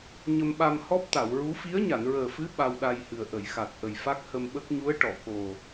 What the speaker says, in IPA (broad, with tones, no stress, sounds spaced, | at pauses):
ɲ ə˧ m ɓ a˧ m h ɔ˦˥ p̚ t̪ a˨˩˨ w ɹ u˧˥ f i˧˥ ə̯ ɲ a˨˩˨ n ɹ əː˨˩ f ɨ˧˥ ɓ a˧ w ɗ a˧ j h ɨ˨˩ ə̯ ʔ ə˨˩˨ j x a˨˩ t̚ ʔ ə˨˩ j f a˦˥ k̚ h ə˧ m ɓ ə˦˥ k̚ ɲ u˧˥ ə̯ ʈ ɔ˨˩˨ k o˨˩